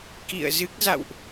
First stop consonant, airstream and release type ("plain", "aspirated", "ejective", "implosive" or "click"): plain